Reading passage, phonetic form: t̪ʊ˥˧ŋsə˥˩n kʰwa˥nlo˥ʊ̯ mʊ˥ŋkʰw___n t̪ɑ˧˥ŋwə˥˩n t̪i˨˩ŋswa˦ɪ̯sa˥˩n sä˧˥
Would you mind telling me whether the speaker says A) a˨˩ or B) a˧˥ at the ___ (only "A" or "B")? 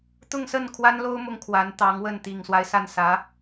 B